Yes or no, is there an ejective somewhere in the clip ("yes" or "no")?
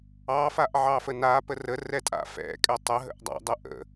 yes